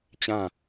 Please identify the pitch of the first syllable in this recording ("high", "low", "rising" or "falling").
falling